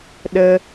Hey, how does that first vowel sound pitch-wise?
high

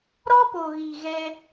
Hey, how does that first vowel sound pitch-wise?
high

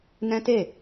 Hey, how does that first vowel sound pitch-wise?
high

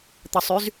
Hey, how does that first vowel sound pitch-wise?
low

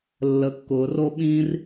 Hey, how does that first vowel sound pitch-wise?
low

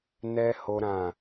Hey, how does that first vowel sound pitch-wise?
high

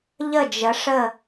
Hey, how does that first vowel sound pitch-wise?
falling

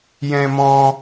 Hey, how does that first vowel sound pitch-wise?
high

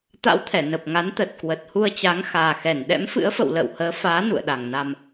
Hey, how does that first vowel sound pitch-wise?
rising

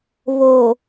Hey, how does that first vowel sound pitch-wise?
low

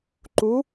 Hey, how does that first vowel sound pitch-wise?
rising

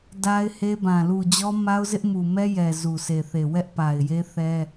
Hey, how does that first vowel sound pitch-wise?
high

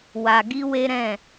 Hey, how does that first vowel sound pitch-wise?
low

